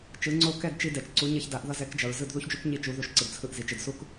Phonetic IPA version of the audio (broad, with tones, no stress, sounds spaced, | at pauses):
t͡ʃ ɯ˩˥ ŋ͡ǀ o˥˩ k ɛ˥˩ d t͡ʃ i˧ d ɛ˩ t͡ʃ ǀ u˩˥ ɲ ʌ˧ ç d a˩˥ ʔ ð ʌ˧ z ɛ˩˥ k d͡ʒ ʌ˩ ɹ z ɯ˥˩ d ð u˥ ç d͡ʒ u˥ k ɲ i˥˩ t͡ʃ u˩˥ ð u˩˥ ʃ ǀ ɯ˩ d t͡sʰ ɯ˧ ʔ z i˩ t͡ʃ ɯ˩ d s u˥ k